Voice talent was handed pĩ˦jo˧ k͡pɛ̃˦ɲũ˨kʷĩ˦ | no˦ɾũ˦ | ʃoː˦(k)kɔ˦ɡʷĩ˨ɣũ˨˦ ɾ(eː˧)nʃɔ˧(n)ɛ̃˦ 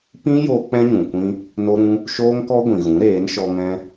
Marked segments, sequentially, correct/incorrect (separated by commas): incorrect, incorrect, incorrect